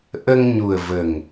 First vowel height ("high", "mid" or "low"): mid